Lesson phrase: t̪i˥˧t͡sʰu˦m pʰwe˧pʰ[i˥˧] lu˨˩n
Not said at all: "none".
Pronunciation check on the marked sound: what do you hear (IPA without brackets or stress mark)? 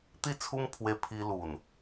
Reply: i˧